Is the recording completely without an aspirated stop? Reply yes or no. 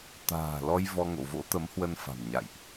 yes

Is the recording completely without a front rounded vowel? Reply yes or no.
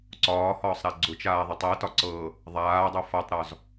yes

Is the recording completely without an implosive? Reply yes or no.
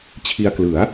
yes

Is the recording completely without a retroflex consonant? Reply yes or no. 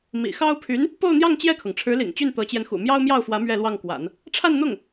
no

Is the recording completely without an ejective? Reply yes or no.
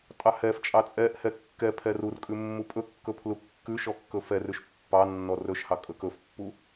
no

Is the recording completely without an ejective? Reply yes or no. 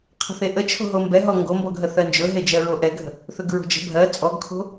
no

